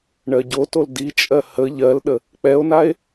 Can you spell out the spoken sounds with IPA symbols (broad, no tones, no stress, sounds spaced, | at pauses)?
ɳ ɜ ɟ o t o l d i t͡ʃʼ ɜ h ə ʎ ɜ l ɗ ə | k͡p ɛ o̯ n a e̯